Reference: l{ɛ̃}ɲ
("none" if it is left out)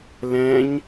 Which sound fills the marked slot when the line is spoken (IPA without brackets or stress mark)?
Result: ɛ̃